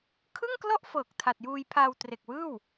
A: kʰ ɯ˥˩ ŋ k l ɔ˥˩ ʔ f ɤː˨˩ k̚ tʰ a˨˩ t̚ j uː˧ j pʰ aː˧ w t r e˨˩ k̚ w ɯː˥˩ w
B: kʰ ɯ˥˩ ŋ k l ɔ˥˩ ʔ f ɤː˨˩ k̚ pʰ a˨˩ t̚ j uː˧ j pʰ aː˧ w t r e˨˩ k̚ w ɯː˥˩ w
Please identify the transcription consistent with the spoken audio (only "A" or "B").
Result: A